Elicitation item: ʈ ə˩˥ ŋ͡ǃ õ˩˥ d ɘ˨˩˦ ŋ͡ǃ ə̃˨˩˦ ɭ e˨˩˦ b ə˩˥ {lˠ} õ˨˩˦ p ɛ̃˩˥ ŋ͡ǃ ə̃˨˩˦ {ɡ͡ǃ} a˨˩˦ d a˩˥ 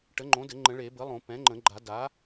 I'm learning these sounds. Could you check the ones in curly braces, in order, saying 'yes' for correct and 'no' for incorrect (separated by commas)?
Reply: yes, yes